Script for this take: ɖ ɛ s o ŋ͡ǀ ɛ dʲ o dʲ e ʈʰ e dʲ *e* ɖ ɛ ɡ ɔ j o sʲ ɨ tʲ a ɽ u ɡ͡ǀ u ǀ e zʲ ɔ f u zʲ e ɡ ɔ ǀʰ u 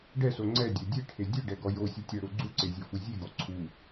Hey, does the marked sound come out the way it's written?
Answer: no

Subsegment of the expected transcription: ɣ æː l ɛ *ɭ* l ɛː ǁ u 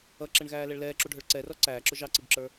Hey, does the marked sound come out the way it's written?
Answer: yes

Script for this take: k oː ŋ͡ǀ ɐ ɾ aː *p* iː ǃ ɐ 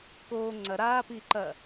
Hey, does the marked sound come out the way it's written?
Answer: yes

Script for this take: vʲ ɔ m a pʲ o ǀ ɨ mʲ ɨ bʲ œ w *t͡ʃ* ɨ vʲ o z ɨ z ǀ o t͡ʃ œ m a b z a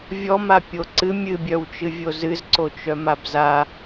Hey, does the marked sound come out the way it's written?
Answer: yes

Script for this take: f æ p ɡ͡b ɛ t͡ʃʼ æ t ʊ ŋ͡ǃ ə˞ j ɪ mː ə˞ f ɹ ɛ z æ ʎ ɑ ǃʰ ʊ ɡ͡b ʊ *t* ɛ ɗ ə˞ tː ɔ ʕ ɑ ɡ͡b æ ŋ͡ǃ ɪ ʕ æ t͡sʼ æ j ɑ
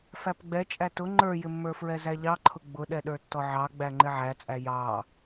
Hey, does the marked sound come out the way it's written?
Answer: no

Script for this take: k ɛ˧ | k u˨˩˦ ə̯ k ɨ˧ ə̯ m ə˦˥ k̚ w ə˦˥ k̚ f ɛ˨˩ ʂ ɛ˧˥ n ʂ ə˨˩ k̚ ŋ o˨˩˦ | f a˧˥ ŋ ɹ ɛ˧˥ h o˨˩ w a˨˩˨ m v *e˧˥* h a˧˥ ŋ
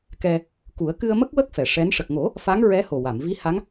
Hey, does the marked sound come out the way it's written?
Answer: no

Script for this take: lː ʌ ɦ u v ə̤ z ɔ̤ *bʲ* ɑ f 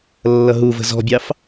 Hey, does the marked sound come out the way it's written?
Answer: yes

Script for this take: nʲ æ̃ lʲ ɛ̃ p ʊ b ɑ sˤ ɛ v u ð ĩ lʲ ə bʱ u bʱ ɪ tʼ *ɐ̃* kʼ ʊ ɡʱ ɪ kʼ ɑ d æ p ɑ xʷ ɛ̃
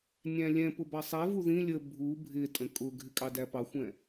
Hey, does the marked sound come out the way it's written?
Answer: no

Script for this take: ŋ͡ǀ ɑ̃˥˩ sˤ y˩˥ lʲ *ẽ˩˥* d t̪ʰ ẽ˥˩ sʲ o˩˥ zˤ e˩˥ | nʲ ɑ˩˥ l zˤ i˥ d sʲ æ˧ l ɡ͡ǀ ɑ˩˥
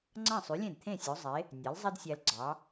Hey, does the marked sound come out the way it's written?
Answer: no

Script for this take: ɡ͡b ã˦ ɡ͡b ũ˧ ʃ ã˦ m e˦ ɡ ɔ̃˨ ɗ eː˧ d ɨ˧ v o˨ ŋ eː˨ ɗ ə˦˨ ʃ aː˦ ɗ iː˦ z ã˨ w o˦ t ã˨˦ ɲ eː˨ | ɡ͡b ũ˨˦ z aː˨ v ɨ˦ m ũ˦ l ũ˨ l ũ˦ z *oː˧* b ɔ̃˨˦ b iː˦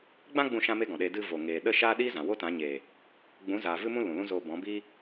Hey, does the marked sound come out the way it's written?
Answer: yes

